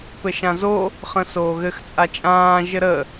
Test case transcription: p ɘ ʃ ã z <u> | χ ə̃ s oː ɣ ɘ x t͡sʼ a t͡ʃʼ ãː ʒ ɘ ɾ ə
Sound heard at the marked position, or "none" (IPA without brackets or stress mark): o